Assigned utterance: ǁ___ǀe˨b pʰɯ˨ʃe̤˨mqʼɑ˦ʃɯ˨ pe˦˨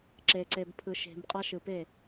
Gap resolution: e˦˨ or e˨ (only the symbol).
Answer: e˨